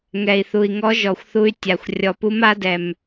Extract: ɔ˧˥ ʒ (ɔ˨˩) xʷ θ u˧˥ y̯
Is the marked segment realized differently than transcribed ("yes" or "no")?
no